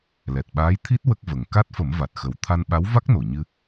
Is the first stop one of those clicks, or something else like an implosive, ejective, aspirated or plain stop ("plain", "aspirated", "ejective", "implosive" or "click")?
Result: plain